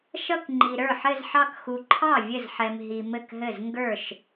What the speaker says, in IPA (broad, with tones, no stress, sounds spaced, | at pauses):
ʃ ʌ˥˧ k ŋ͡ǃ i˨ ɾ ə˞˥˩ ħ ɘ˥˧ z ħ ɑ˥˧ k x u˨ ǃʰ ɑ˥˩ vʲ ɘ˥˩ z ħ ɛ˨ m ɦ i˨ m ɘ˥˩ k ɦ ɘ˥˩ z ŋ ɡ ə˞˥˩ ʃ